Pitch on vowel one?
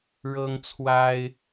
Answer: high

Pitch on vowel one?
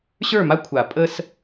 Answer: falling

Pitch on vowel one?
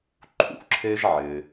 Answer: low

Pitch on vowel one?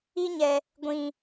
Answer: high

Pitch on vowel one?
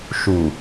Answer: low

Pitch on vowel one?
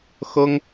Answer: high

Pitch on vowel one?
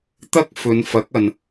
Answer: high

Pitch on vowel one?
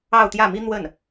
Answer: falling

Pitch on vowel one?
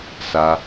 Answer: high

